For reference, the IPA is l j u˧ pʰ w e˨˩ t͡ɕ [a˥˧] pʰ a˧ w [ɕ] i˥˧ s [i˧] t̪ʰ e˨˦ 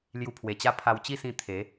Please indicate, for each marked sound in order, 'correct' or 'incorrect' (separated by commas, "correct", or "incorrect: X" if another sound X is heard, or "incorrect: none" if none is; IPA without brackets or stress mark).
correct, incorrect: t͡ɕ, incorrect: ĩ˧